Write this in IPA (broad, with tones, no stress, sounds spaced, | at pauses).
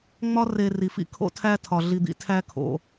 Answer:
ŋ͡m ɒ˦ r e˨ r i˨ f ḭ˦ kʰ o̰˦ tʰ æ˦ tʰ ɒ˩ ɮ i˨ d̪ ḭ˦ tʰ æ˦ kʰ o̰˨